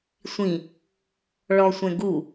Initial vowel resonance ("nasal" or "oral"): nasal